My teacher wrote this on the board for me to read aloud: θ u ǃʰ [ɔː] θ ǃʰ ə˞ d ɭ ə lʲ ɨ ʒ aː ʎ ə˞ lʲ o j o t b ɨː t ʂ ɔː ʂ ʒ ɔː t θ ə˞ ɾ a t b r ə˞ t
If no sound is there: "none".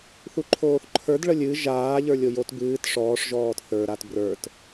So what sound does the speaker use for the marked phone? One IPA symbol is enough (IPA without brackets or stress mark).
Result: oː